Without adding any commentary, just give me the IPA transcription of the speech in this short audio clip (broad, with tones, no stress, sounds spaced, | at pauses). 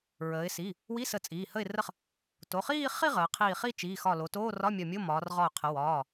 ɹ əː˩˧ ɪ̯ s i˩˧˩ | w i˧˥˧ s ə˧˩ t͡sʼ iː˩˧˩ h ə˧˩ ɪ̯ r ə˧˩ χ | t o˩˧˩ χ iː˥˧ χ i˥˧ ʁ əː˩˧ qʰ iː˧˩ χ i˥˧ t͡ʃ iː˩˧˩ x ɒ˧˩ l o˩˧ t oː˧˥˧ r ɒ˧˥˧ mʲ ɒ˧˩ mʲ o˧˥˧ m ɒː˩˧ r ʁ ɒ˧˩ ʊ̯ qʰ ə˩˧ w ɒː˩˧˩